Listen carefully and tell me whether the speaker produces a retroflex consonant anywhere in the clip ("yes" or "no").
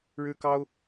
yes